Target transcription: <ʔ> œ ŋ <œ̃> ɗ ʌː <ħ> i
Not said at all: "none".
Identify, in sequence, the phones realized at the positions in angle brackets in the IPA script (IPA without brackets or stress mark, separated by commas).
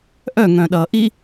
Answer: ʔ, œ̃, ʔ